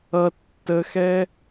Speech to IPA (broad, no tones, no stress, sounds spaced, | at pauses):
ʌ tː ə x ɛ